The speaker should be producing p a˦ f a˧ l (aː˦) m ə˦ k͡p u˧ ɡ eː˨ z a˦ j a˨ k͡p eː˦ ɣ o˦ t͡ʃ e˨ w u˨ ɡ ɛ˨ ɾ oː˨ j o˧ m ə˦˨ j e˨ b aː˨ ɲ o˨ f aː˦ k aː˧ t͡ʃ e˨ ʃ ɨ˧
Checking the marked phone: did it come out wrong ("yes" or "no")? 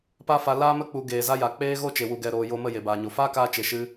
no